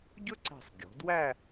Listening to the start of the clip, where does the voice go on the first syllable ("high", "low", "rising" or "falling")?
high